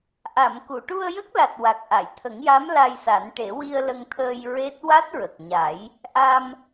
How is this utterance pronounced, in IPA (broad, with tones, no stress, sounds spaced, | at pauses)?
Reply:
ʔ a˨˩˨ m k u˨˩˨ ʈ u˧ ə̯ j ə˦˥ k̚ l a˨˩ t̚ w a˨˩ k̚ ʔ a˨˩˨ j t̪ʰ ə˨˩˦ ŋ j a˧˥ m l a˧ j s a˨˩˦ n ʈ e˨˩˦ w i˧ ə̯ l ə˧ ŋ t̪ʰ əː˧ j ɹ e˦˥ t̚ w a˦˥ t̚ ɹ ə˨˩ k̚ ɲ a˨˩˦ j | ʔ a˧ m